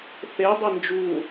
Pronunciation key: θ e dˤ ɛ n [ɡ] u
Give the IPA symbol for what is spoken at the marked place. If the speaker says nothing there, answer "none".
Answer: d͡ʒ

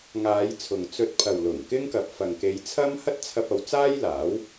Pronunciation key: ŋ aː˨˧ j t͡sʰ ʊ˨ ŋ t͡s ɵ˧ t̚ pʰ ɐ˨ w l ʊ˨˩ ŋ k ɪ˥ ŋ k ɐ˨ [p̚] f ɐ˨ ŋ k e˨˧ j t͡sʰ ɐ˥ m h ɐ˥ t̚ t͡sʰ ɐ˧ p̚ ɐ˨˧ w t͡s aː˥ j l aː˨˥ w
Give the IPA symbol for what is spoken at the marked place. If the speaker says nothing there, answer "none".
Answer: p̚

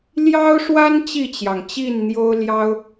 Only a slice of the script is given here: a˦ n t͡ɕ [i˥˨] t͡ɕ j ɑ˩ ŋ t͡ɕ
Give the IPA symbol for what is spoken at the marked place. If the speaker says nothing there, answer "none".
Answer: i˥˨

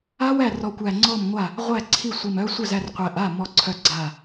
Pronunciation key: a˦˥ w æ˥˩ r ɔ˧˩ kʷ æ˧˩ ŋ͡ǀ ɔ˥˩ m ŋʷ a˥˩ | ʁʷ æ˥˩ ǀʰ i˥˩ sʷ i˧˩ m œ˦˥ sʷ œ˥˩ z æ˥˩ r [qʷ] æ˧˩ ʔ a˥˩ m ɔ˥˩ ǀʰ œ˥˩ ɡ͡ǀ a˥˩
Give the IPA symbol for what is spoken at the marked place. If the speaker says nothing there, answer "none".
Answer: qʷ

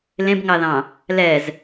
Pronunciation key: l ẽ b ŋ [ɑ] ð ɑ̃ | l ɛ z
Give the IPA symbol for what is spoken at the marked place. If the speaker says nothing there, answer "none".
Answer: ɑ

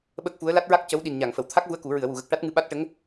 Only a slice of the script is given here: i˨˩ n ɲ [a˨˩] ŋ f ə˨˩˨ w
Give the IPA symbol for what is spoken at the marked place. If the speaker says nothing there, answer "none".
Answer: a˨˩˨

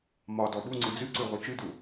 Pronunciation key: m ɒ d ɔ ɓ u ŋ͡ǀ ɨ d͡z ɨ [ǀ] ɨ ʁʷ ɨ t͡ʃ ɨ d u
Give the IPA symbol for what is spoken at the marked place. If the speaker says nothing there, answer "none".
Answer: ǀ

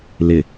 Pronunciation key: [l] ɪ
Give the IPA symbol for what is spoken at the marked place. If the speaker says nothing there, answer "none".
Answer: l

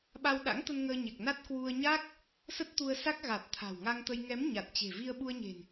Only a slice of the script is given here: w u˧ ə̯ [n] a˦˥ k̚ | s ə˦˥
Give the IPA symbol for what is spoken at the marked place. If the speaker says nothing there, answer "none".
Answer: ɲ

